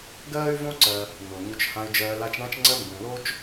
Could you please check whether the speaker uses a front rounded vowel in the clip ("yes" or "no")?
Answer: yes